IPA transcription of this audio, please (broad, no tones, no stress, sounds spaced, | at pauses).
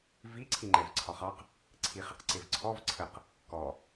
v i ǀʰ i ŋ͡ǃ ɛ v ǀʰ ɒ χ ɑ q | ǀʰ i χ ɪ q ǀ ɪ v ǀʰ ɔ v ǀʰ ə q | k ɔ